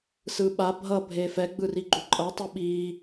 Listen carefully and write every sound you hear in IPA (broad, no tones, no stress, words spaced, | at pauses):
sɯɓa bʱʌ bʱefɛ ɡ͡bɯriɡ͡ǃuǃʼʌ tˤoɓi